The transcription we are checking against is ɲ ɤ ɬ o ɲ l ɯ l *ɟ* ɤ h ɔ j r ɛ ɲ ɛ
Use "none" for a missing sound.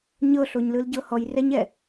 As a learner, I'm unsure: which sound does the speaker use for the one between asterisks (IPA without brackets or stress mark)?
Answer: ɟ